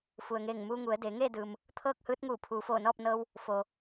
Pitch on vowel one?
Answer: low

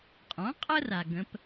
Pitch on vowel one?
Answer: rising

